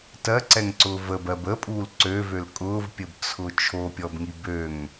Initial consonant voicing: voiceless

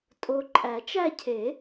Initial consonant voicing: voiceless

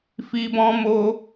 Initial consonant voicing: voiceless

